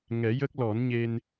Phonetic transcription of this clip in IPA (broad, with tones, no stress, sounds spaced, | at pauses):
ŋ ɛ˨˩˦ j ə˦˥ k̚ l ɔ˨˩˦ n ɲ e˧ n